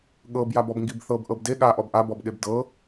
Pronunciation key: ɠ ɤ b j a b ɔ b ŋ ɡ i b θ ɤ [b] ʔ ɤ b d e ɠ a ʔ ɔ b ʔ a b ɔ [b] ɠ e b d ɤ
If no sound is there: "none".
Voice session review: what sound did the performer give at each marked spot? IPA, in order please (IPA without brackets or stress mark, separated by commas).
b, b